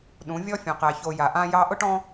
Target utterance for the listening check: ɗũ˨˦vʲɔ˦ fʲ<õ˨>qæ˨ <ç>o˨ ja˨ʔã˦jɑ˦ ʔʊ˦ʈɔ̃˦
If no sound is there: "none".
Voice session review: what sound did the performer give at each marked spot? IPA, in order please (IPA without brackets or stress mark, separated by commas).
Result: õ˨, ç